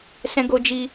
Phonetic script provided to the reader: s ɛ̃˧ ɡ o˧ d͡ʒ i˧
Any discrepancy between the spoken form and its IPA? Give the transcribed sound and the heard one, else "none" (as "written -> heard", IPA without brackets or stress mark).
none